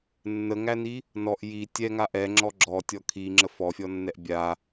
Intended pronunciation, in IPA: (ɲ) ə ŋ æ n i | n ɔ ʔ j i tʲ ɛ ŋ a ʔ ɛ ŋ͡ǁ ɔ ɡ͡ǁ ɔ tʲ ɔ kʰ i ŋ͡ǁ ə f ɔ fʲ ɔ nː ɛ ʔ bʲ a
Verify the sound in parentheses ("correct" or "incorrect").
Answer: incorrect